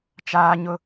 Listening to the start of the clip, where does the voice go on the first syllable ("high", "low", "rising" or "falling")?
high